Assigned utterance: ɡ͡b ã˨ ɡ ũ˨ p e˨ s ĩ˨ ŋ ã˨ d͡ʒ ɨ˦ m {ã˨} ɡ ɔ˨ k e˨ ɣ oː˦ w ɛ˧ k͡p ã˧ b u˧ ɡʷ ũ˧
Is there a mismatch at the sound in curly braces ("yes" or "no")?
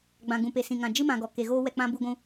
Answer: no